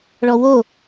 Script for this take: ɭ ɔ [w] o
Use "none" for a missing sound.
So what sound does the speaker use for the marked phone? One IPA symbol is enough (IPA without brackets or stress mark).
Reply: w